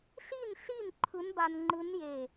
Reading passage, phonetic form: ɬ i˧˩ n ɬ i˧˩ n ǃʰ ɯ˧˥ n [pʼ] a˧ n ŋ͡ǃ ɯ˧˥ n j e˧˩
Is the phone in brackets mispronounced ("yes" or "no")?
yes